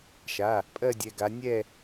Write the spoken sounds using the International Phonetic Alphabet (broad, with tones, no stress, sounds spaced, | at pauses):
ʃ a˩˧˩ | pʼ ɜ˥˨ dʲ ɛ˩˧˩ ɡ a˨˦ nʲ ɛ˥˨